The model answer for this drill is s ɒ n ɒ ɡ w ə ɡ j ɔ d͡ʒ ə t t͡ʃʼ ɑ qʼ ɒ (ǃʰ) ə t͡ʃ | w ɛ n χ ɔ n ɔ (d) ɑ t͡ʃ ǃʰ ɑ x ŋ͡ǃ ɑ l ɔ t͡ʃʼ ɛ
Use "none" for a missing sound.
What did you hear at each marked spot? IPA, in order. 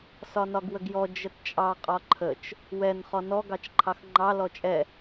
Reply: ǃʰ, ɡ

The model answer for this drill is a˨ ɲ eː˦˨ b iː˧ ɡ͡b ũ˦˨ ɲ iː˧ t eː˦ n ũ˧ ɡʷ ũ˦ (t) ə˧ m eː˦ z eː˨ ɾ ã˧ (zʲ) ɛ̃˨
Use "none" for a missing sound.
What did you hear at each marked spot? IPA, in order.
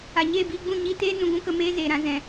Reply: k, z

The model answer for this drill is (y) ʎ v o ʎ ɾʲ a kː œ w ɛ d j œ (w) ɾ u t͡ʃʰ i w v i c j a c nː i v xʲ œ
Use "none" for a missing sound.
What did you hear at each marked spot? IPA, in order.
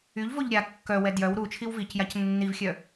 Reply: y, w

